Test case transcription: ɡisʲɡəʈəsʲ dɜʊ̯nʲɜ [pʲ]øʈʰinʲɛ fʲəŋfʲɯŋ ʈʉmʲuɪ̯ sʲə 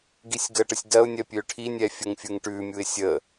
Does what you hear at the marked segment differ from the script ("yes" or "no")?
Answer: no